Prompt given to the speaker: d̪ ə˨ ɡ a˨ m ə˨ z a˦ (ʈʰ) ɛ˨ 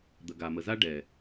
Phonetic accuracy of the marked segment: incorrect: ɖ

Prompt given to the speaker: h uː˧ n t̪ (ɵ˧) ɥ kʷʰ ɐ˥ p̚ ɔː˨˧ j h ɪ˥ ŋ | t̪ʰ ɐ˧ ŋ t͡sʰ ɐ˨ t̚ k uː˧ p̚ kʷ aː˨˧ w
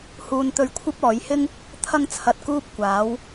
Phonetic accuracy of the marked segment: correct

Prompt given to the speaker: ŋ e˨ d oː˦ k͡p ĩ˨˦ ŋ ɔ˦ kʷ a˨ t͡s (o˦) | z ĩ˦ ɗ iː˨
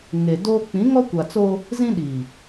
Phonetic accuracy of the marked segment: correct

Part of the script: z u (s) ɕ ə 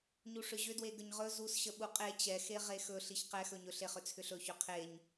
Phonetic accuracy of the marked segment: correct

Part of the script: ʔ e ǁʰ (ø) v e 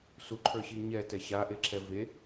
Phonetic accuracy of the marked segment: incorrect: ɛ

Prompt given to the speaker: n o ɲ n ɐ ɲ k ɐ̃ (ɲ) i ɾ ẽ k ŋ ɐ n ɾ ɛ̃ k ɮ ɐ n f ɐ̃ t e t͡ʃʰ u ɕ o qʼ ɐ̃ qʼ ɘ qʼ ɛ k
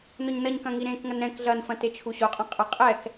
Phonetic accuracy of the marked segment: incorrect: ŋ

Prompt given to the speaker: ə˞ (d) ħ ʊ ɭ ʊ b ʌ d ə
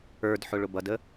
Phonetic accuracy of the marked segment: correct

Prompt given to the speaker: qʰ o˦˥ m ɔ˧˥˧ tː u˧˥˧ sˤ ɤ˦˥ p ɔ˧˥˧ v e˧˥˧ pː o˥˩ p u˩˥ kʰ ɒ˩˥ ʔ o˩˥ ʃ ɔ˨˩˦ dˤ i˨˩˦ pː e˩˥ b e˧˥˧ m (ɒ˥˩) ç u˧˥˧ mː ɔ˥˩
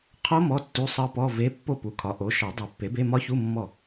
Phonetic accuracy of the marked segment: incorrect: ɒ˦˥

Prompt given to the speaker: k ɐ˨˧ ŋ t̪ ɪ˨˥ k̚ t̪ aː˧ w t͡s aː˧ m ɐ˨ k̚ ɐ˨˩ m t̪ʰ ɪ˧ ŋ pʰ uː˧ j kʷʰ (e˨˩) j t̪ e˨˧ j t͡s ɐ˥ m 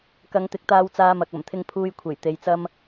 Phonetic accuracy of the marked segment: correct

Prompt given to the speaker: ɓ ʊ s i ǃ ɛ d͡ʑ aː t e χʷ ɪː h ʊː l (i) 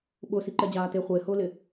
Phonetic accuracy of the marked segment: incorrect: ɪ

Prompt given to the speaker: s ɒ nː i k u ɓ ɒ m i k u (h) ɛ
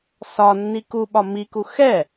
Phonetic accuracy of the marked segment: incorrect: x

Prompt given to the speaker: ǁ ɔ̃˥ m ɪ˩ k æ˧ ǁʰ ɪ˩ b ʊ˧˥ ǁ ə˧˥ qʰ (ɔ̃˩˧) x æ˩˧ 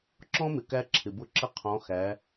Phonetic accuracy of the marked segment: correct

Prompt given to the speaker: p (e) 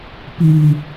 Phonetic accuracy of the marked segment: incorrect: i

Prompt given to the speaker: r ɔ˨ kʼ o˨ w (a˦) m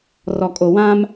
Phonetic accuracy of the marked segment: incorrect: ã˦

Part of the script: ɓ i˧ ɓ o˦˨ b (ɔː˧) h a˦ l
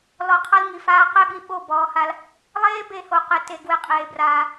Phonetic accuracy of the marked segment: correct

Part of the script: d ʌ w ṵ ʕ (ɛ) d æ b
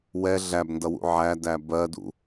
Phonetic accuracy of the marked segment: incorrect: æ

